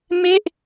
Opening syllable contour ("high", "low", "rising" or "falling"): falling